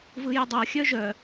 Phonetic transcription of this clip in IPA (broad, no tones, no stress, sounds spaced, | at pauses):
v ɯ j ə dˤ ɤ xʲ œ ʒ œ